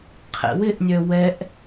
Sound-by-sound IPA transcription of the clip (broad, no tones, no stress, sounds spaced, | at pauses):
qʰ ɛ̰ w ɪ ʔ nʲ œ w ɛ ʔ